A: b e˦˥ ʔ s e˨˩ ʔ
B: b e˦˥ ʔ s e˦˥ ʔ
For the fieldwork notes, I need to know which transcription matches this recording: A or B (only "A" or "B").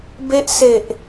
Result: A